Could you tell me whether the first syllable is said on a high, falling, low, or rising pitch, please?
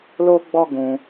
high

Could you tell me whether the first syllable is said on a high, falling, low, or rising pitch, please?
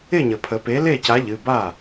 falling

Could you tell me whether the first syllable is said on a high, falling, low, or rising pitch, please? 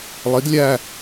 rising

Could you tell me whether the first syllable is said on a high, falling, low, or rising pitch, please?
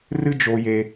high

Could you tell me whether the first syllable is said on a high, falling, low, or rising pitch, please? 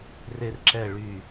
high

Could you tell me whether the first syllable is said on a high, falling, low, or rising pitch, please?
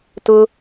high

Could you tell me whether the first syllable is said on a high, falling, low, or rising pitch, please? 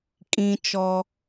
high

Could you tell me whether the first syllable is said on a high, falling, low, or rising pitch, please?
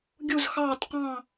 falling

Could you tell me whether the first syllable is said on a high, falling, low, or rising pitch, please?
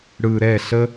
low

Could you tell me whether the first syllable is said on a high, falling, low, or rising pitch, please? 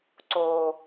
low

